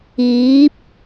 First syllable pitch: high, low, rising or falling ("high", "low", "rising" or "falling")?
rising